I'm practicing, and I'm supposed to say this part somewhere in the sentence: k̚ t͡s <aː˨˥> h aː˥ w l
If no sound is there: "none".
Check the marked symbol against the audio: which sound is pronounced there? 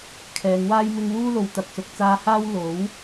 aː˧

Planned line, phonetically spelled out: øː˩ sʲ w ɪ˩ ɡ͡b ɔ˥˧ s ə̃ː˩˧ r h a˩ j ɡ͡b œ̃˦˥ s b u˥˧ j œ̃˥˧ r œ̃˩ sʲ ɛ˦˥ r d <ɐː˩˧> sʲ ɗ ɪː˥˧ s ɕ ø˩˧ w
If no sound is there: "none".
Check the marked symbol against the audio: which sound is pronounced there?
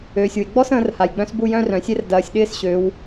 ɐː˩˧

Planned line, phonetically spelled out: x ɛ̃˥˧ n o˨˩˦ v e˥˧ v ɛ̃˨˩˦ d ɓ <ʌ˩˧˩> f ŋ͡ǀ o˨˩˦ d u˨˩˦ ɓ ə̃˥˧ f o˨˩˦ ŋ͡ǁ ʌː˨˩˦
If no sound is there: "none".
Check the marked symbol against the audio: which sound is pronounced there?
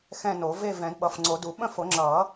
ʌ˩˧˩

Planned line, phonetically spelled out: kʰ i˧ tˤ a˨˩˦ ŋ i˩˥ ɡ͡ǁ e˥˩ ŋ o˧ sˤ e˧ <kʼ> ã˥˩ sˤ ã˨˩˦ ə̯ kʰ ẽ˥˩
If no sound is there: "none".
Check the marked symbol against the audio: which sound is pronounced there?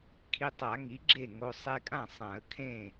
kʼ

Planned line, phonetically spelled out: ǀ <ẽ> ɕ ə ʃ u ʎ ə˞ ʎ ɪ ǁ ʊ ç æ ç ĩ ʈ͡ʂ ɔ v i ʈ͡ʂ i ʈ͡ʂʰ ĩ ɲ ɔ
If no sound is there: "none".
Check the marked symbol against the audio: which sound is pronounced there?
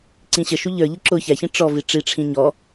ĩ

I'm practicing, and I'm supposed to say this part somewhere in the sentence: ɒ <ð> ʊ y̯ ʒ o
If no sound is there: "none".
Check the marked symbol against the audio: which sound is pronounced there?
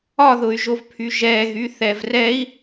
ð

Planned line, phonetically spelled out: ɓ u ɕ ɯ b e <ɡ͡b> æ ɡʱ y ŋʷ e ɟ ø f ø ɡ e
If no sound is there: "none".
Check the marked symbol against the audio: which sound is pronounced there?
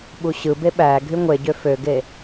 ɓ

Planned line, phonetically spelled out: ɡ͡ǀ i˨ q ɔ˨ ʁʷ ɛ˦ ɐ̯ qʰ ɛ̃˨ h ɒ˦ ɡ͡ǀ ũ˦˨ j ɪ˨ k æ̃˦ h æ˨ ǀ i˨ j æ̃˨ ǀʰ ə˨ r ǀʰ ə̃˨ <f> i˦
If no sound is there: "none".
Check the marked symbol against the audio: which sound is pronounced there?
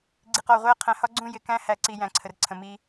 m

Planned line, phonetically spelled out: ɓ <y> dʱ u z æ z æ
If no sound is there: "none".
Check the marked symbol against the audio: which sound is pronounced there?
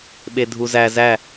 e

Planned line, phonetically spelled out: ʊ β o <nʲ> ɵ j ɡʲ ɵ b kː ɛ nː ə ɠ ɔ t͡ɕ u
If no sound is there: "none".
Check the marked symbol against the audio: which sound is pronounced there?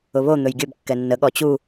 n̪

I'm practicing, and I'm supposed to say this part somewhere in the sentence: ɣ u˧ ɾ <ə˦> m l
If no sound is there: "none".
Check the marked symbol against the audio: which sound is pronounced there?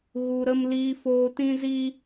ə˦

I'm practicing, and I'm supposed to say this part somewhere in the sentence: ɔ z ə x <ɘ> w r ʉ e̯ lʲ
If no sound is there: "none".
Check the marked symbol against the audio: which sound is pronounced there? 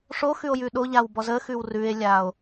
ʉ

